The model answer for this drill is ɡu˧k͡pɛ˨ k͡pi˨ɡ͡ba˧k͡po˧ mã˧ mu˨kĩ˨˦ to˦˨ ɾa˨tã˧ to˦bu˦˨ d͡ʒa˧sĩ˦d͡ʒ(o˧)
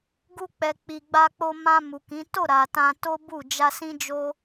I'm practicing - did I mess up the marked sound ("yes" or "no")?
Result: yes